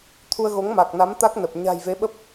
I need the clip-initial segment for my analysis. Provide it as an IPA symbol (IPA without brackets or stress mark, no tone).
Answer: t̪ʰ